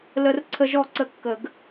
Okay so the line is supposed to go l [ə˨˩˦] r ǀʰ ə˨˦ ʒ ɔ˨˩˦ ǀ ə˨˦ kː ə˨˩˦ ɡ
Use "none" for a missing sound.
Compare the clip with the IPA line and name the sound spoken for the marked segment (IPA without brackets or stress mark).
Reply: ə˨˩˦